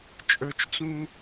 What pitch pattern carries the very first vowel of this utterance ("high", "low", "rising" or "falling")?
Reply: low